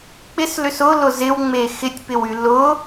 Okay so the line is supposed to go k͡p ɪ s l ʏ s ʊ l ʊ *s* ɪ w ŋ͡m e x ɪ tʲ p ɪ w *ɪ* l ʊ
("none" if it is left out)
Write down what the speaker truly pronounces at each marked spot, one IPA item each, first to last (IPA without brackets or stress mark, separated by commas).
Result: z, y